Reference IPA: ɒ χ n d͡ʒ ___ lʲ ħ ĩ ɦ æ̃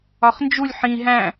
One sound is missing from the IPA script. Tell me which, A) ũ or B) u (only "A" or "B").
B